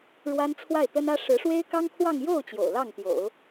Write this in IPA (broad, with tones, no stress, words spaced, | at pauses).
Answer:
ɻwa˥nt͡sʰwa˥˩ɪ̯t̪ə˥nä˥ ʂɻ̩˧˥ʂwe˥ɪ̯kɑ˥ŋkʰwɑ˥˧ŋ jo˥˩ʊ̯ t͡ɕjo̰˨˩ʊ̯lɑ˥˩ŋ t̪jo̰˨˩˦ʊ̯